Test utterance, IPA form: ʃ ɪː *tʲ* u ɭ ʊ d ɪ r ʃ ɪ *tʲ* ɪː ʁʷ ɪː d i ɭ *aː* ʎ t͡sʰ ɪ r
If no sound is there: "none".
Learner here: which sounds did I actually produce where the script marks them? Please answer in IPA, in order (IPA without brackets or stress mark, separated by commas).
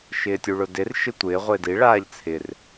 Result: tʲ, tʷ, aː